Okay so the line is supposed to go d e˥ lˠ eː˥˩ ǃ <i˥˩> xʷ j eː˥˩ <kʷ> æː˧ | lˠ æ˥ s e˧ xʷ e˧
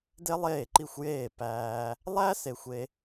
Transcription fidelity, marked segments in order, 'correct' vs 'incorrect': correct, incorrect: p

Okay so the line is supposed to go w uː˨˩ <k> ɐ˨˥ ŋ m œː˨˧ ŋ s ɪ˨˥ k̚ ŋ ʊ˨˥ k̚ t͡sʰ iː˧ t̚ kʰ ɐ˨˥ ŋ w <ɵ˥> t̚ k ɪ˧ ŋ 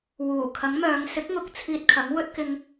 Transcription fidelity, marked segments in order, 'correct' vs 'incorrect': incorrect: kʰ, correct

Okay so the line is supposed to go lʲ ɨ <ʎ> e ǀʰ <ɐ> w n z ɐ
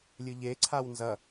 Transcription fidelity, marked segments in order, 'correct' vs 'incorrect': correct, incorrect: a

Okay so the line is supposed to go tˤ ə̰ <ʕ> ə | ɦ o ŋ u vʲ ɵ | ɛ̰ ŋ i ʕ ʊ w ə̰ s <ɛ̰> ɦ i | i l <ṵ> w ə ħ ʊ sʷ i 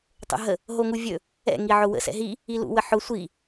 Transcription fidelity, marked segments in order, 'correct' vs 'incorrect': incorrect: ɦ, correct, correct

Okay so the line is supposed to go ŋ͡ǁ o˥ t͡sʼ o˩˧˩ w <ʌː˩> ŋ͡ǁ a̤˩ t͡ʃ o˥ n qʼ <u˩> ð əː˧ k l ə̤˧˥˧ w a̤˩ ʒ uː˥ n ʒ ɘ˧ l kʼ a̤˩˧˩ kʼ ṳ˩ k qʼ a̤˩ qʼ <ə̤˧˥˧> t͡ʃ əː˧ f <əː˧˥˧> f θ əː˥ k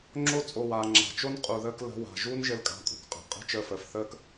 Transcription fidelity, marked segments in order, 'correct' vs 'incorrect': incorrect: aː˩, correct, correct, incorrect: əː˩

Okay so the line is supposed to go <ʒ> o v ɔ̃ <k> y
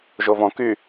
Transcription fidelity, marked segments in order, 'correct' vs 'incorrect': correct, correct

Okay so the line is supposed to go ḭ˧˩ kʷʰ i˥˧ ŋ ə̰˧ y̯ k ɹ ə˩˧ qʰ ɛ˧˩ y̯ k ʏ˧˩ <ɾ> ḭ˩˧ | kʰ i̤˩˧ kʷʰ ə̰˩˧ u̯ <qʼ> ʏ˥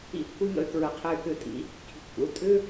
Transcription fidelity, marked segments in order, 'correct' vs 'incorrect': incorrect: tʼ, incorrect: tʼ

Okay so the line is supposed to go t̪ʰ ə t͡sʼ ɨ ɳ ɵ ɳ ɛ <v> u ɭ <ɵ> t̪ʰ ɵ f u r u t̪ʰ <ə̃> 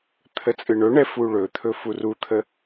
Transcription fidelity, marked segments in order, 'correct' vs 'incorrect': incorrect: f, correct, incorrect: ə

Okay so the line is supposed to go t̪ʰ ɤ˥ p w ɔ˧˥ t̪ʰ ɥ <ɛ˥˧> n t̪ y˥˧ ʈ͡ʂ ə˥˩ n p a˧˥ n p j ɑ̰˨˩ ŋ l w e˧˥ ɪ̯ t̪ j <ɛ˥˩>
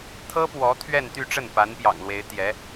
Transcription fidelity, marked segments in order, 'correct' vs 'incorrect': correct, incorrect: ɛ˧˥

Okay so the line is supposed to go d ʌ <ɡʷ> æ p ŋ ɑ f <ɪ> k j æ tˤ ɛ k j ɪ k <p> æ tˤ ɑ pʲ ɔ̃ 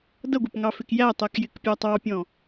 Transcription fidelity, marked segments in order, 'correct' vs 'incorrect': correct, correct, incorrect: pʲ

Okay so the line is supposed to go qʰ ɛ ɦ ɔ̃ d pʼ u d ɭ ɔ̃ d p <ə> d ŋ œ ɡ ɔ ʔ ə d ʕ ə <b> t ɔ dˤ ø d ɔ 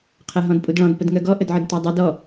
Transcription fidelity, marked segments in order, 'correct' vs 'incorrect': correct, incorrect: d

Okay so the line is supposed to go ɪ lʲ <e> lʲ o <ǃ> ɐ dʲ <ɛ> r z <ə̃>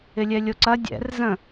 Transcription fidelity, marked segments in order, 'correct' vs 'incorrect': incorrect: ɛ, incorrect: ǀ, incorrect: ɛ̰, correct

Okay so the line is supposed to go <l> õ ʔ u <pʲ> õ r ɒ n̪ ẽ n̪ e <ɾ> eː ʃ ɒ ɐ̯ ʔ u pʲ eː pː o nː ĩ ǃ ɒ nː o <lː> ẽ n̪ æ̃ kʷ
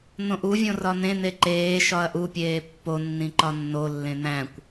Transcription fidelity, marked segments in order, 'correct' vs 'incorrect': incorrect: n̪, incorrect: vʲ, incorrect: ǃ, correct

